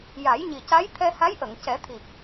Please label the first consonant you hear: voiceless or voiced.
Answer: voiced